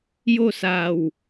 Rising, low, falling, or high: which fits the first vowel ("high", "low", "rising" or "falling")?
falling